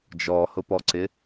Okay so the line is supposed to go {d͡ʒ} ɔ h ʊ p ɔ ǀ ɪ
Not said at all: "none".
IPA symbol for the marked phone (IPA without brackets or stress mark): d͡ʒ